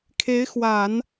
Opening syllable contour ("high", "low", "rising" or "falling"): rising